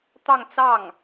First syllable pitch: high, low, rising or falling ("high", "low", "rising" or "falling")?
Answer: falling